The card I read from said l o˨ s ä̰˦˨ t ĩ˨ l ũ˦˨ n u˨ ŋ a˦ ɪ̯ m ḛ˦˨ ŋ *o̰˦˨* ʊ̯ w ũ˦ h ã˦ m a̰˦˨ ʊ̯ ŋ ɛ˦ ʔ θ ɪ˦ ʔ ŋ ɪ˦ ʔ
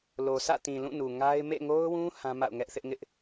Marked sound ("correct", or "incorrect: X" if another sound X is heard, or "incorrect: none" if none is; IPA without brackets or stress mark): incorrect: o˦